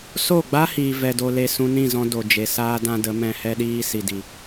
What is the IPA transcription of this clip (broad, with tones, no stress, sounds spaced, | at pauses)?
s o˦˨ ɡ͡b a˦ h iː˨ v ɛ˦ d o˦ l e˦ s ũ˧ n ĩ˦˨ z ɔ̃˧ d o˨ d͡ʒ e˨ s aː˦ d ã˦ d ə˨˦ m ɛ̃˧ h ɛ˦ ɗ iː˦ s i˨ d i˨